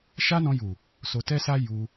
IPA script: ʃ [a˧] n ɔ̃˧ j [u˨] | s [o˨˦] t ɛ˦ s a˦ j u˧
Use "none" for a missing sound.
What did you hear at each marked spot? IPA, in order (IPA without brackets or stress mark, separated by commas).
a˦, u˨, o˧